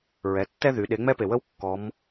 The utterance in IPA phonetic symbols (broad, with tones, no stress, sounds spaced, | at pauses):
ɹ ɛ˩˧ tː ɛ˥ ð y˩˧ ɗ e˩˧ ŋ͡m ɛ˧ p e˩ w ə˧ w kː ɔ˩˧ m